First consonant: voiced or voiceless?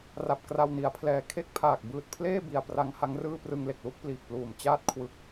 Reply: voiced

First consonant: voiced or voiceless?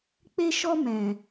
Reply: voiceless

